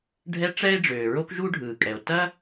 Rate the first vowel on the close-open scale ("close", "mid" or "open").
mid